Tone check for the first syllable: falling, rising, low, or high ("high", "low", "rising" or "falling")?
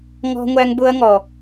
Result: high